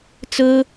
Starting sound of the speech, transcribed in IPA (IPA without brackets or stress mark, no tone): t͡s